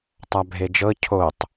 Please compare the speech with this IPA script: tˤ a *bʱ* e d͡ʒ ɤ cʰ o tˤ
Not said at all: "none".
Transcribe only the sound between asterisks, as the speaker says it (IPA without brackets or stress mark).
bʱ